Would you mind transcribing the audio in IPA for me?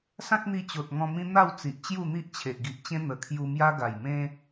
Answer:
sã˦k̚n̪i˧ t͡ɕo˨t̚ŋɔ̃˧mĩ˦ n̪a˥˧w t͡si˨ʔt͡ɕju˥˧n̪i˦ʔt͡ɕʰe˨ʔ ɡi˨ʔt͡ɕẽ˦ n̪ə˨˩kʰju˧mja˦ ɡa˨˩jmẽ˦

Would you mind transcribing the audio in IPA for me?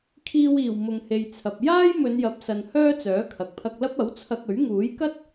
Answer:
kʰiː˧wiː˨˩w mʊ˨ŋhe˨j t͡sʰɐ˨p̚ jaː˥j mɵ˨˧njɐ˨˥p̚sɐ˨n hœː˥t͡sœː˨˥kʰɐ˨k̚ pʰɐ˧k̚lɐ˥p̚ ɐ˨˥wt͡sʰɐ˧k̚ɵ˨˥ɥ ŋuː˨˥jkɐ˥t̚

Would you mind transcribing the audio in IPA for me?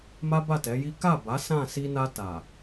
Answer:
ma˦ba˦˨tɛ˨˦ji˦ ka˦˨ba˨˦ sã˦˨ si˧na˧ta˨

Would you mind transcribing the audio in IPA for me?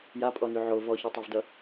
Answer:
japʼɔny ʕo vɔçytˤovdʌ

